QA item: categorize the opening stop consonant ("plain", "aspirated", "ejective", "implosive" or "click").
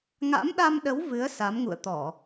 implosive